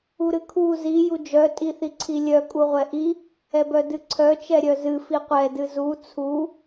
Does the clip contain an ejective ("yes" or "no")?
yes